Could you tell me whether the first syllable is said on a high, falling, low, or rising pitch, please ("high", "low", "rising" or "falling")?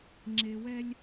low